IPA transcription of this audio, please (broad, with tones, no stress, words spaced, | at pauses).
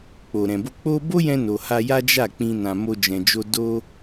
k͡po˨ɾɛ̃˨bo˧ k͡po˦ bo˦jɛ̃˧no˨ ha˧ja˦ d͡ʒa˦˨k͡pĩ˧ nã˧mo˦d͡ʒɛ̃˧d͡ʒo˦ do˦